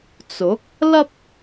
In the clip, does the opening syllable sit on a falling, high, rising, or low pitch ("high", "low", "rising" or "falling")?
rising